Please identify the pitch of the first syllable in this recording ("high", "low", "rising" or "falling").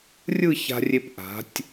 falling